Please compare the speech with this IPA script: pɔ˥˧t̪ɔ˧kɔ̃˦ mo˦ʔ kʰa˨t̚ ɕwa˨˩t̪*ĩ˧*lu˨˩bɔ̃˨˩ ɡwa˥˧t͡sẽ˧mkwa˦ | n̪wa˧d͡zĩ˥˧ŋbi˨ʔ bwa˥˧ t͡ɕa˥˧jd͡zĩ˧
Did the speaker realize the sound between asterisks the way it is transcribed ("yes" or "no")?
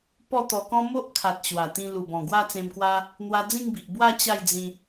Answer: yes